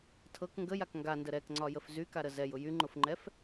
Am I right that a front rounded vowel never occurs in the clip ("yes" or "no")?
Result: no